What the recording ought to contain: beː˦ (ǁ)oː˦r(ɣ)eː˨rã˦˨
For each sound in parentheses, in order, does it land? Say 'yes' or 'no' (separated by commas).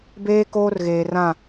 no, yes